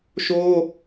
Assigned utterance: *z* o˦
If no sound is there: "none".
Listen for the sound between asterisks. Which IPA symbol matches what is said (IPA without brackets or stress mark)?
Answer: ʃ